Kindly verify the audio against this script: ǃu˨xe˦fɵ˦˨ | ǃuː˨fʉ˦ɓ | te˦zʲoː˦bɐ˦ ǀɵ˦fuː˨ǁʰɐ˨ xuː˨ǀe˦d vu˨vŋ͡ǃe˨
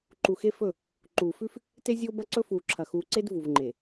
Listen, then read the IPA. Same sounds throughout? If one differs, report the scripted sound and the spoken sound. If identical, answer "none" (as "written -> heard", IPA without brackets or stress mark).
ɓ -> f